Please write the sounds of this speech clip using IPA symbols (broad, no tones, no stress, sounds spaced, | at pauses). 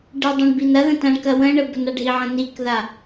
ɖ ə dˤ ɐ̃ ɳ b i n ɐ ð ə̃ t ɐ̃ ɳ k ɐ w ə̃ ɳ ə b ə n a ɖʱ i ʕ ə̃ n i k ð a